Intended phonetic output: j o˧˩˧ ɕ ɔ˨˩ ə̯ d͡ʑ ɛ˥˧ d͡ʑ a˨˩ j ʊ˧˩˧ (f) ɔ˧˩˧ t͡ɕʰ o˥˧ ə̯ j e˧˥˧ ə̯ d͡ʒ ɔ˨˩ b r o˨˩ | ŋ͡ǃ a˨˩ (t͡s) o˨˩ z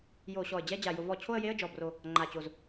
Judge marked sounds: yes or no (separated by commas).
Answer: no, no